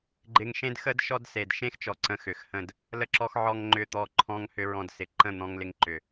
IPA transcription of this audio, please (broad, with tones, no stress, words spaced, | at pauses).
ɡ͡ǃɪ˧ŋʃẽ˦d xə˦d ʃɔ˦dse˨d ʃẽ˦xt͡ʃɔ˨ ǀə̃˧xʏ˨xhə̃˦˨d | lə˧ǁɔ˧x ʕɔ˧ŋ ŋ͡ǃʏ˦˨t̪ɔ˦˨ǃʰɔ̃˦ŋhʏ˦ ɹɔ̃˧dsɪ˨ ǃə̃˦˨n̪ɔ̃˧ŋ lɪ˧ŋǃʏ˨